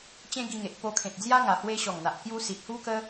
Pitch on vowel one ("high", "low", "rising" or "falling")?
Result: high